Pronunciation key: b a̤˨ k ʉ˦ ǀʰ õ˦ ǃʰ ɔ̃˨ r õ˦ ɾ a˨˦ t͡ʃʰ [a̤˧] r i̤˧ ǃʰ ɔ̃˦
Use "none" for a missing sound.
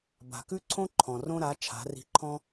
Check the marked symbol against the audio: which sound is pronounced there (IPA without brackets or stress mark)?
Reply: a̤˨˦